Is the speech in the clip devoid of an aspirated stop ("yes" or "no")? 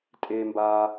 yes